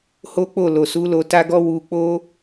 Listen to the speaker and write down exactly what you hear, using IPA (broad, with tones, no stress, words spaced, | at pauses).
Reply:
ho˦k͡po˦˨ lo˨su˨˦ lo˧ta˦ɡɔ˦ wu˧k͡po˦